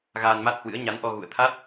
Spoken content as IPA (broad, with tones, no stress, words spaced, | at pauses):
ɣaː˧nma˦˥t̚hwɨ̰˧˥ə̯ ɲa˨˦nʔɔ˧ ɣṵ˧˨ə̯t̪ʰa˦˥t̚